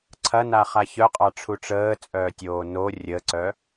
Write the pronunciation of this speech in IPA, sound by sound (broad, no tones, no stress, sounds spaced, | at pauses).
ǀʰ ɐ n a χ a ç œ qʼ ɑ ʈ͡ʂʰ u ʈ͡ʂ əː t͡sʼ œː tʲ oː n o rʲ ə ǀ œ